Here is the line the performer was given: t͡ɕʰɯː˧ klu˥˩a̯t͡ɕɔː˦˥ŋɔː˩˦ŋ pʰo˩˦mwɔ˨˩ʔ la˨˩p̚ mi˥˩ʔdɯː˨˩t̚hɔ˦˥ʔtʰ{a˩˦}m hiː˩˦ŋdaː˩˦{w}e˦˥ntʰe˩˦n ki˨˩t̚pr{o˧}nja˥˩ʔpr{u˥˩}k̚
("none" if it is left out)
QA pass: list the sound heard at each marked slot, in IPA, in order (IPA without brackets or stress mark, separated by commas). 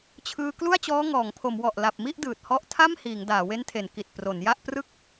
a˥˩, w, o˩˦, ɯ˥˩